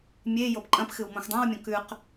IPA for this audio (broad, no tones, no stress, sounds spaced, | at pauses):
mʲ e j o p ǃʼ ɐ̃ p x ɨ w m õ x dˤ ã w mʲ õ k ʉ q